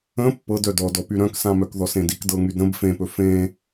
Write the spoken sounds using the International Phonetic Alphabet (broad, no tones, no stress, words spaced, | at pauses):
ə̃ pːɤdœ dɔdɔpy ɾœ̃ksãmœk ðɔsẽdik dɤŋydɾə̃b fẽpɵ fẽ